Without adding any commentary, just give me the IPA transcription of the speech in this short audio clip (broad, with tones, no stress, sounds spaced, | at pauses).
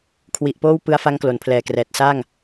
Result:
kʰ w i˨˩ ʔ p oː˥˩ w p ɯ˧ a̯ f a˦˥ ŋ k l o˩˦ n pʰ l ɛː˨˩ k r ɛː˨˩ t̚ s aː˥˩ ŋ